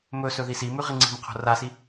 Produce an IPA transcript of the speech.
m ɵ s ɵ ð i s i m ʉ ʁ i ŋ͡ǀ i̤ m qʰ o̤ r a s i

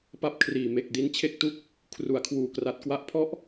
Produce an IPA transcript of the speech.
p a˥˩ p̚ kʰ r iː˨˩ m e˨˩ k̚ d i˧ n t͡ɕʰ e˥˩ k̚ t u˥˩ k̚ | kʰ r u˩˦ a̯ kʰ w uː˧ k r a˦˥ t̚ k w a˦˥ ʔ pʰ ɔ˥˩ ʔ

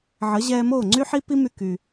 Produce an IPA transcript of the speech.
ʕ ə˩˥ ʑ ɛː˧ m oː˥˩ ŋ͡ǀ y˥ ħ i˥ p i˥ m y˧ k y˩

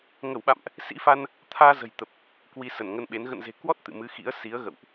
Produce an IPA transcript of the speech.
ŋ ə˧˩ w ɓ a̰˧˨ m ʔ | s ḭ˧˥ f a˧ n | t̪ʰ aː˧ z ə̤˨˩ j t̪ ə˨˩ p̚ | k w i˧ s ə˧˩ n ŋ ə˧ n ɓ e˨˦ n ɣ ə̰˧˨ n z e̤˨˩ k w ɔ˦˥ t̚ t̪ ɨ̰˧˨ m ɨ˨˦ x ḭ˧˥ ə̯ s i˨˦ ə̯ ɣ ə̰˧˨ w ʔ

